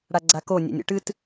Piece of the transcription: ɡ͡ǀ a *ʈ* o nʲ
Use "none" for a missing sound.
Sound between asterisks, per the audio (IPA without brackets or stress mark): k